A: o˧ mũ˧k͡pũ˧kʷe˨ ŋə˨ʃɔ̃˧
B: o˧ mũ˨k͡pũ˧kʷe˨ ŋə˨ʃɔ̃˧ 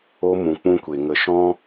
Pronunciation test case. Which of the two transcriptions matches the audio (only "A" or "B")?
B